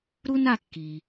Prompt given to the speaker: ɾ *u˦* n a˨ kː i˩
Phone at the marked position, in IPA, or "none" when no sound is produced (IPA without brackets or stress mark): u˦